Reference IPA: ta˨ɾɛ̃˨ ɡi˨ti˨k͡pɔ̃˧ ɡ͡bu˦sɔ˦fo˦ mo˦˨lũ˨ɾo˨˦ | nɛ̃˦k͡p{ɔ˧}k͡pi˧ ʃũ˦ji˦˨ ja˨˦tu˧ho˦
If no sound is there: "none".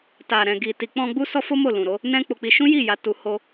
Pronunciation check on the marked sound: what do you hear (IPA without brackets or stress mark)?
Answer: o˧